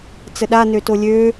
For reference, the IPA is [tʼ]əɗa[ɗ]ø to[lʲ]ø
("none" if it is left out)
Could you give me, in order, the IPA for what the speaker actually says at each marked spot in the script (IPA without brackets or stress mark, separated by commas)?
t͡s, n, lʲ